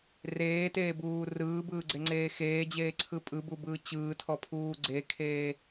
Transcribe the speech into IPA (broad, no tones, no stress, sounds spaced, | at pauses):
r eː t eː b uː r ɯː b ɯː ɡ͡ǀ e ŋ͡ǀ eː x eː d͡ʑ eː ǀʰ ɯ pʼ ɯ b u b ɯː t͡ɕ ɯː tʰ ɔ pʰ uː ɡ͡ǀ e kʰ eː